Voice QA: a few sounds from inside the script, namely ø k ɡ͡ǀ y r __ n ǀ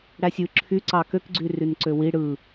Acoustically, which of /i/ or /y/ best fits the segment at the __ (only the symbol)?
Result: y